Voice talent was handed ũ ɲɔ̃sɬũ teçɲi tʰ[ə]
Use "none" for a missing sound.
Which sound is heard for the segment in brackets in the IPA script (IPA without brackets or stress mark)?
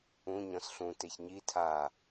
a